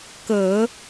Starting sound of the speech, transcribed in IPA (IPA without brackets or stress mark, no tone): k